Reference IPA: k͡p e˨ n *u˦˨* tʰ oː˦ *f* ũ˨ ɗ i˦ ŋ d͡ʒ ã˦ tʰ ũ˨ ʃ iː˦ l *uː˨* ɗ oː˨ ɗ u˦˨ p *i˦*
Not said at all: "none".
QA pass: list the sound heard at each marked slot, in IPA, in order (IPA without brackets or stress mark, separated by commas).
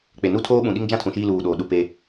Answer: u˦˨, ɓ, uː˨, e˦